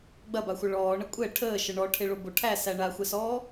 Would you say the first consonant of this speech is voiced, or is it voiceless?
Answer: voiced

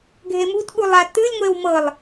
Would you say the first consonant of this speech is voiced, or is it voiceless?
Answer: voiced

